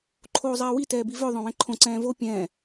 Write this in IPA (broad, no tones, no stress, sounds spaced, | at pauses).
ǃʰ oː zˤ ɛː w i t ɛː b i v œ ðˤ œ̃ w ɛ̃ ǃʰ õ ǀ ɛ̃ː v o pʲ ɛ̃ː